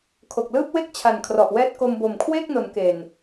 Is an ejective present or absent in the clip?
absent